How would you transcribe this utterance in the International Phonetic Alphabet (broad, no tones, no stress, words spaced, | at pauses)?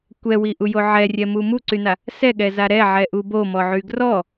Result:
kʷɛwiʔujo ʕɛrʲɛmu muǀyna | sɛɠɛza ɾɛʕɛʔu bomɔʕy ɡrɔ